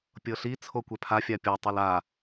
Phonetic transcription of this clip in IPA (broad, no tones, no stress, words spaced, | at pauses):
pʲɤɬi t͡sʰokʷɛpʰa fʲapʲɔ tˤɛla